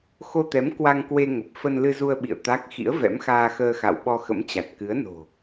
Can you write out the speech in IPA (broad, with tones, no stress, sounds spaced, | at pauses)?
x o˧ t̪ ɛ˨˦ m k w a˧ ŋ k w e˧ ŋ ə˨˩ p̚ f ə˧ n l ɨ˧ z u˧ ə̯ ɓ ḭ˧˨ ə̯ t̪ a˦˥ k̚ x ḭ˧˥ ə̯ v ɛ̰˧˥ m x aː˧ x əː˧ x a̰˧˨ w ɓ ɔ˧ x ə̰˧˥ m t͡ɕ a˨˩ t̚ k ɨ˨˦ ə̯ n o̤˨˩